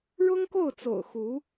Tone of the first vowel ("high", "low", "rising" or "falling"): high